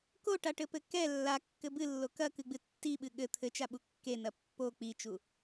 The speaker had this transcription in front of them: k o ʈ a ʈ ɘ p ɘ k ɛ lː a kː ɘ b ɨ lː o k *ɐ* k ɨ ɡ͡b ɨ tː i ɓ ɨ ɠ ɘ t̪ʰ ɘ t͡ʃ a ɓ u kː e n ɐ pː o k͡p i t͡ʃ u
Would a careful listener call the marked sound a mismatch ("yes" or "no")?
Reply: no